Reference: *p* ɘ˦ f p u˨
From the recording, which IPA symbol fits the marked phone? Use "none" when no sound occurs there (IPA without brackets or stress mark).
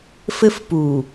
f